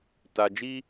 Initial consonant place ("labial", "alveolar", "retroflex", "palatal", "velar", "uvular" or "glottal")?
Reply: alveolar